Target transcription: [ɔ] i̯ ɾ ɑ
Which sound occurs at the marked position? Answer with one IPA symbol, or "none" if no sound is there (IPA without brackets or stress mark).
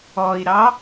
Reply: ɔ